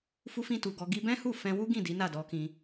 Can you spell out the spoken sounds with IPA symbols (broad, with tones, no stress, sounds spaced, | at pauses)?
f u˧ f ĩ˧ t u˨ ɡ ɔ˧ ɡ i˧ b ɛ̃˦ h u˦˨ f ɛ̃˧ w u˦ ɡ ĩ˦˨ d i˨˦ n a˦˨ d ɔ˧ k ĩ˧